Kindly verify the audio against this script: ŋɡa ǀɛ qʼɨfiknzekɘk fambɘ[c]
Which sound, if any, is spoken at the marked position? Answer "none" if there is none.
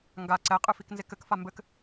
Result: k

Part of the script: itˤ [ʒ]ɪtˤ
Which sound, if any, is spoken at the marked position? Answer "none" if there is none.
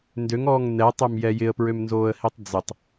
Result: d͡z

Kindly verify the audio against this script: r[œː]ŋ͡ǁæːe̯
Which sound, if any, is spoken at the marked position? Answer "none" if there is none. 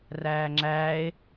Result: æː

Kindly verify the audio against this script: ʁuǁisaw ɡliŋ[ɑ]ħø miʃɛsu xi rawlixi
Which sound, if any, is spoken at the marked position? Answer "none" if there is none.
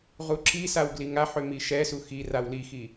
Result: a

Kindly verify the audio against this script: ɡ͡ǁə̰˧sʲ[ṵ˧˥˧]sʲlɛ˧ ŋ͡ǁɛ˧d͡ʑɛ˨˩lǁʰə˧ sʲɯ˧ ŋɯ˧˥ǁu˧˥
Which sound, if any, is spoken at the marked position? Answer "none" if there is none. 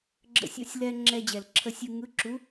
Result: ṵ˧˥˧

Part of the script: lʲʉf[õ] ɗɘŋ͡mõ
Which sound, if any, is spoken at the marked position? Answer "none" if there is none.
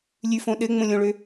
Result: õ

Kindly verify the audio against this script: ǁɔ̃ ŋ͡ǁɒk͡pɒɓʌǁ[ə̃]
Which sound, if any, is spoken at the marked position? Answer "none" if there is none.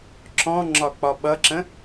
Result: ə̃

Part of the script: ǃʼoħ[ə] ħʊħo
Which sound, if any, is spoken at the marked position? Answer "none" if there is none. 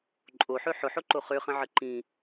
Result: ø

